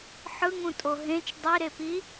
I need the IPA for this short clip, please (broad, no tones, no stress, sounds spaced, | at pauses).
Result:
ħ ɯ ŋ ũ tʼ o ɦ ẽ t͡ʃ dˤ i ɾ e p i